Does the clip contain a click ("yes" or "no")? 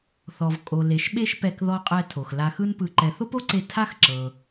yes